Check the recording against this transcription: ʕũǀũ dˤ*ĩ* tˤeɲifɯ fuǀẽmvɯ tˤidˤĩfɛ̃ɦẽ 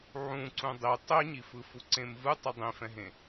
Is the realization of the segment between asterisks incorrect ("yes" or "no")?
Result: yes